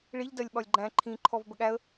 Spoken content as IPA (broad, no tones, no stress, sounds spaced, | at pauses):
ɭ i ʎ d ɜ lʲ ɓ ɒ lʲ ɡ͡ǃ æ̃ ǃʰ ĩ ǃʰ ɔ v b ə ɠ æ ə̯